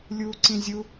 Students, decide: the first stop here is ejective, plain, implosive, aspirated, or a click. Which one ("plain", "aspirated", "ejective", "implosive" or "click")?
click